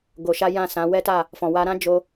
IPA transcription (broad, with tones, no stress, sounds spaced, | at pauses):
ɡ o˧ ʃ a˦ j ã˦˨ s ã˨˦ w ɛ˦ t a˦˨ | f ɔ̃˨ w a˧ ɾ ã˦ d͡ʒ o˧